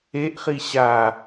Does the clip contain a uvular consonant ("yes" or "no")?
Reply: yes